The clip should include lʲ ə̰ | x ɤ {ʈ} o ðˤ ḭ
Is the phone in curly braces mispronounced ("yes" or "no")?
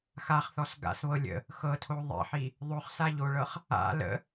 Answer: yes